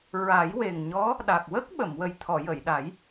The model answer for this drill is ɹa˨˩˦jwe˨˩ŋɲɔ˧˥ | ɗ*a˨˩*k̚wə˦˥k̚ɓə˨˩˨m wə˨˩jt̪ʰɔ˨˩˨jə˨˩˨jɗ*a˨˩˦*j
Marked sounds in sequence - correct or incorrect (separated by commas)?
correct, correct